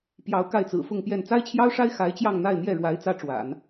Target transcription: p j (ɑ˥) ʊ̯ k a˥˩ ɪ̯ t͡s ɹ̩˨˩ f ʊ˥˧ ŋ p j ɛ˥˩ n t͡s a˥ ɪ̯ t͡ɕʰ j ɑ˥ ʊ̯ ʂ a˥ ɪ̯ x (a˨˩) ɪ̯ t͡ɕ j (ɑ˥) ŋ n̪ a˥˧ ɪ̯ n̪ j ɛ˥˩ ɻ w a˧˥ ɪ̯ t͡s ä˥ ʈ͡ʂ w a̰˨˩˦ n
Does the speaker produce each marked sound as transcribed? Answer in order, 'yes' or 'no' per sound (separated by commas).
no, no, no